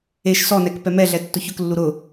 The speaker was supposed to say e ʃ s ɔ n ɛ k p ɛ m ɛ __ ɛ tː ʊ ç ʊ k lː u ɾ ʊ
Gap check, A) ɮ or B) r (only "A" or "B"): A